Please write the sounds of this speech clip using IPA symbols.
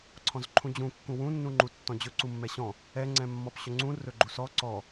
ǀʰ ɔ̃ z ǃʰ ũ d͡ʑ ũ kː ũ w ũ nː ũ ŋ͡ǃ u tː ɔ̃ d͡ʑ ɵ ǀ u mː ɛ ɕ ɔ̃ | ɛ ŋ͡ǀ ɛ̃ mː ɔ p ɕ ɵ ŋ͡ǀ ũ r ɵ ɡ͡ǃ u s ɔ ǀ ɔ

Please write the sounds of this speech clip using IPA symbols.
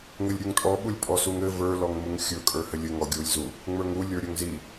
ŋ ɘ lʲ ɾʲ u ŋ tʼ ɔ ɓ u lʲ pʼ ɔ s u ŋ ɘ v ə˞ l ɔ ŋ m u ŋ xʲ ɵ kʼ ə˞ h ɘ lʲ ɘ ŋ ɔ ɡʲ u lʲ z u | ŋ͡m ə˞ ŋ u lʲ ə˞ ɾʲ ɵ ŋ z i

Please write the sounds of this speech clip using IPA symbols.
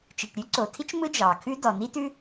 t͡ʃ i˩ ʈ ɾʲ ʉ˥ ǀ o˩ tʰ i˥ t͡ʃ m ɯ˥ d͡ʒ ɑ˩ kʰ ʉ˥ d ɔ˩ n i˥ t ʉ˥

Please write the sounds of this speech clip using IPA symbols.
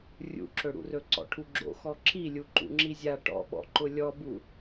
rʲ ṵ ǁ ɵ ɽ ṵ r ɵ ǀ ɔ̰ ʈʰ u ɡ͡ǁ o̰ x ɔ ǁ i lʲ u ǃ ṵ ŋ͡ǁ i zʲ a ʈ ɔ̰ ɓ ɔ̰ ǃ ʊ lʲ ɔ b u

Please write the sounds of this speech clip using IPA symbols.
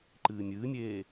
ǃ ɨː nʲ ɨː nʲ eː

